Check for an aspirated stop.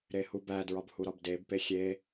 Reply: absent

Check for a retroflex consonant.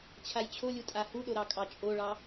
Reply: present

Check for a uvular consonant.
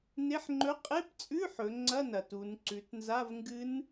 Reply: present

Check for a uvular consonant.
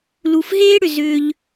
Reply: absent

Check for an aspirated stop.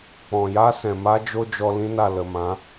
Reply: absent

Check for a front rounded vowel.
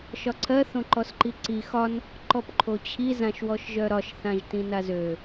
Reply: present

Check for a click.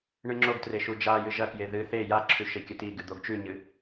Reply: present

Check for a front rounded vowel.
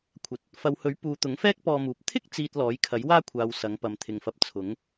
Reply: absent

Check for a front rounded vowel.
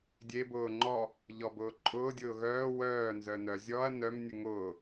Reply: present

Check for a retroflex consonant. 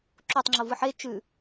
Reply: absent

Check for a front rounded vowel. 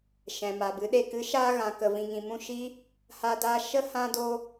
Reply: absent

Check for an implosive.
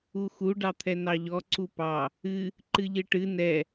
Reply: absent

